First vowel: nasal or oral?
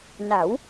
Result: oral